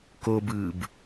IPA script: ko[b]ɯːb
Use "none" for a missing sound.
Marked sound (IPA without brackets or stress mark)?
b